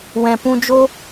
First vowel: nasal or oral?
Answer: nasal